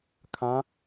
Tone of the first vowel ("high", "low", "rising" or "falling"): rising